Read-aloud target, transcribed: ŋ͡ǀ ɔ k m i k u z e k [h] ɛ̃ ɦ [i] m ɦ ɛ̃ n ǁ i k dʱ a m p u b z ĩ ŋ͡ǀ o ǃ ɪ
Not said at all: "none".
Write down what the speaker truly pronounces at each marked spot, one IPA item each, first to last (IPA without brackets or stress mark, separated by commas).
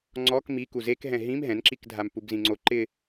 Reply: ɦ, ĩ